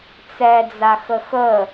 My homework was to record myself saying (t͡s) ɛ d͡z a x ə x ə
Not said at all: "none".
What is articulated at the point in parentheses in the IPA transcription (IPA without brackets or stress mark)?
t͡s